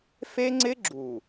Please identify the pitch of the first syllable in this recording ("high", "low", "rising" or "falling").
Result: high